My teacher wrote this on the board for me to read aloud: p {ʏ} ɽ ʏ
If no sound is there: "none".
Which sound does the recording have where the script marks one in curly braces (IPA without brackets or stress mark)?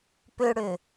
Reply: ʏ